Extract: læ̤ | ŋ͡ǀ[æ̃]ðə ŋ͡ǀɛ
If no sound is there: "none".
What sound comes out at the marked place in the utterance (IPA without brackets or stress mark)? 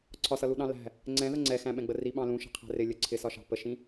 ɛ̃